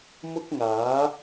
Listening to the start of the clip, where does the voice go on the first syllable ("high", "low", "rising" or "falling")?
high